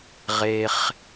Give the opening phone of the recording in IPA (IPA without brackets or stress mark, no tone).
ʁ